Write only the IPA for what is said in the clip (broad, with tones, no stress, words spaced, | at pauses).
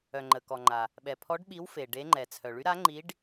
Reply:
œ˩ŋ͡ǃə˩kɔ˩ ŋ͡ǃa˩ | ɓɛ˩pʰɔ˨˦ɖɓi˨˦w fe˩ɖe˨˦ ŋ͡ǃɛ˩t͡sʰœ˩ɭy˨˦ ɾa˨˦ŋ͡ǃi˨˦ɖ